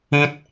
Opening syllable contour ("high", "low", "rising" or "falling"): high